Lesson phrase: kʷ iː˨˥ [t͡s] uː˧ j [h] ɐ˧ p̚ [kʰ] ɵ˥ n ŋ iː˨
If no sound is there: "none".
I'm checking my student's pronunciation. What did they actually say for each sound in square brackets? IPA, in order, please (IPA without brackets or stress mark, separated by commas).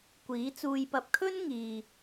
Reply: t͡s, p, kʰ